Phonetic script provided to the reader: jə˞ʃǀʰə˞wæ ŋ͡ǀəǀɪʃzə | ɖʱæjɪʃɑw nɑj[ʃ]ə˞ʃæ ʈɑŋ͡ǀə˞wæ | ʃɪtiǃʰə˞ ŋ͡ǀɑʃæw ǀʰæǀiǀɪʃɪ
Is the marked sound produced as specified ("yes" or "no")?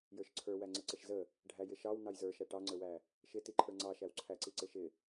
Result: no